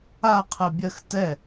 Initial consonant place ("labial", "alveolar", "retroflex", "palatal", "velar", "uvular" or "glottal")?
uvular